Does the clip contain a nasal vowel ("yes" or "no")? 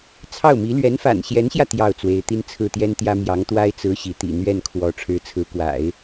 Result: no